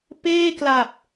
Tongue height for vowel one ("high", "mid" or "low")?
mid